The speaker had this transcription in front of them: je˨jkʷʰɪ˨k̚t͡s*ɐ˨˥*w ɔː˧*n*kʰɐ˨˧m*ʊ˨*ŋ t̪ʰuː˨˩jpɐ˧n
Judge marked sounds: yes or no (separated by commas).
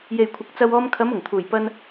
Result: no, no, no